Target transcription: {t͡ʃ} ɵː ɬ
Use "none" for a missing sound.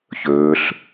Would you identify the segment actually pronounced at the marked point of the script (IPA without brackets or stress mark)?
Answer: ç